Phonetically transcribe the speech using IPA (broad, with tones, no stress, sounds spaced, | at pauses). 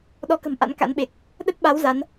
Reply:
ɗ ɔ˨˦ k ə̤˨˩ m ʔ a̰˧˥ n k a̰˧˥ n ɓ e˨˩ k̚ | ɗ ə˦˥ t̚ ɓ a˨˦ w z a˨˦ n